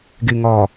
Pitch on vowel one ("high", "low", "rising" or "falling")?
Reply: low